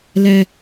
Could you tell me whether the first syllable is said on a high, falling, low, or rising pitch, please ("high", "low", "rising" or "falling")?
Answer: low